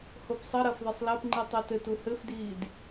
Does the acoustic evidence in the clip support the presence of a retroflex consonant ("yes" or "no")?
no